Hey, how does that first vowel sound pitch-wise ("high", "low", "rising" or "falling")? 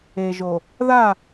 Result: low